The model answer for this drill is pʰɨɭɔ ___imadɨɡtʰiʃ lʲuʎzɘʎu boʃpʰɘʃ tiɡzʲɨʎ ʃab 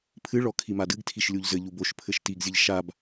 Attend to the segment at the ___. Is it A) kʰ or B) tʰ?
A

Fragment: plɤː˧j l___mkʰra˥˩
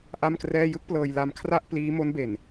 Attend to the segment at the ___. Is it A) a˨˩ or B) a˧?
B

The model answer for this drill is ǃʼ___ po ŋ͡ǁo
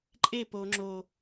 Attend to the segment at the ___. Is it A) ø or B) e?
B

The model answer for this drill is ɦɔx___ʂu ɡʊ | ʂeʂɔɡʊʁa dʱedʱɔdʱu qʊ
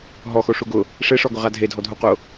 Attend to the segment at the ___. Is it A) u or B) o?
B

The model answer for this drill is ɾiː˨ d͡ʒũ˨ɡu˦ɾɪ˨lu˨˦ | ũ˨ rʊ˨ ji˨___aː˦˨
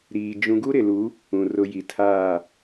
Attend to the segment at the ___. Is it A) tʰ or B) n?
A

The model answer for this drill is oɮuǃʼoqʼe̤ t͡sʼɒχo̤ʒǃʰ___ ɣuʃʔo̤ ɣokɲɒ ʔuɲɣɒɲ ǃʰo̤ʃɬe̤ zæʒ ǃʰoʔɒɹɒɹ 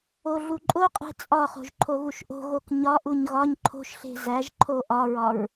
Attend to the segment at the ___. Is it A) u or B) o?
B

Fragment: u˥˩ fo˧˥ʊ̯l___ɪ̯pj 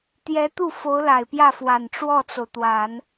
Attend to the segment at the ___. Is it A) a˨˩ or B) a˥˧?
A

